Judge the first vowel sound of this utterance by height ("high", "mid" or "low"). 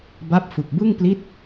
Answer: low